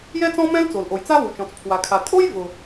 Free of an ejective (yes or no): no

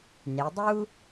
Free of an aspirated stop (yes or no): yes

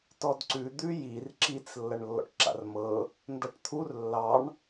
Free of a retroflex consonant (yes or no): no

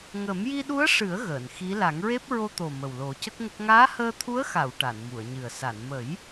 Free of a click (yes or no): yes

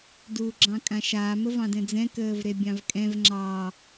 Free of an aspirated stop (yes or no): yes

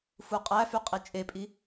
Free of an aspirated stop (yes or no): yes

